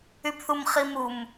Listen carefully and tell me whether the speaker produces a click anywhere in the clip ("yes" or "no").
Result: no